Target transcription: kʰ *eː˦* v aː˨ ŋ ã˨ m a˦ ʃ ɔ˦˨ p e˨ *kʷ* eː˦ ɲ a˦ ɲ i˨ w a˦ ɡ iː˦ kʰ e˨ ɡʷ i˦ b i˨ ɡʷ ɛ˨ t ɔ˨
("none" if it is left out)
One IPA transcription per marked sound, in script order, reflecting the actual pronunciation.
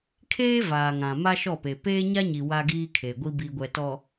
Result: eː˦, p

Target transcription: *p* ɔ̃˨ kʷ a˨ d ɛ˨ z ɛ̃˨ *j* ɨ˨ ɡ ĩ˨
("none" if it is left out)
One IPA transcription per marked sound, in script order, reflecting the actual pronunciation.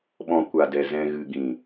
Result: ɓ, ɣ

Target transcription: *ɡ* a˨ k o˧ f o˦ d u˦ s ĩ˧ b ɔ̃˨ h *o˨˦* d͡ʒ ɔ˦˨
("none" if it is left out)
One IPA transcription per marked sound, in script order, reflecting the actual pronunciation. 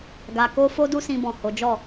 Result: ɡ, o˨˦

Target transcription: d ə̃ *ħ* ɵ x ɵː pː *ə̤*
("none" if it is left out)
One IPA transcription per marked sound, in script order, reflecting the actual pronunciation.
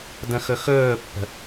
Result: x, ə̤

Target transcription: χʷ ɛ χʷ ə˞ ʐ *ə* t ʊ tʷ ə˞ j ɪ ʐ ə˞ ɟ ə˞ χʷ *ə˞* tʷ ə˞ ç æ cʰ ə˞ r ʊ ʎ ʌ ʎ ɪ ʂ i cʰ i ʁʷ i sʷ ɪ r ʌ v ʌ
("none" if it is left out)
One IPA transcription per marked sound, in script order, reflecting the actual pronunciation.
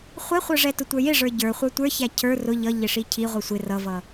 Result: ɛ, ə˞

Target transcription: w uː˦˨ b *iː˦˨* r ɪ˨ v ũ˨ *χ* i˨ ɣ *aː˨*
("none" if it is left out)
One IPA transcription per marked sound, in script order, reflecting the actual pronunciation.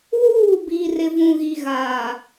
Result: iː˨, ɣ, aː˨

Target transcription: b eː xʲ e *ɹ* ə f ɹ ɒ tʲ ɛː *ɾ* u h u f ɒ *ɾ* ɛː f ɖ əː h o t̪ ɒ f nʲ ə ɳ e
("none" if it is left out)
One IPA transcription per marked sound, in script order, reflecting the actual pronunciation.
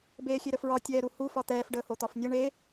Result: ɾ, ɾ, t̪

